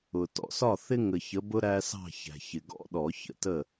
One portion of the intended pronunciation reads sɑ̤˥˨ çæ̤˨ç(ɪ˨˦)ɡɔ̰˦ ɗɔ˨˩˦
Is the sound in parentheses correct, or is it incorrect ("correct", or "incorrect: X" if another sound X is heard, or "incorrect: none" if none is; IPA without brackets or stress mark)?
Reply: incorrect: ɪ˨